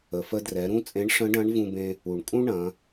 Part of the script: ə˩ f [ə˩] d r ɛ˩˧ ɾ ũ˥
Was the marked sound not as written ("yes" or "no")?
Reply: yes